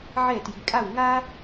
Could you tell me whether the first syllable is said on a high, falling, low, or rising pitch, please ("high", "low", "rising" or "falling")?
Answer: falling